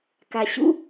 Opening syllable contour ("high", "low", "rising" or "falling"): low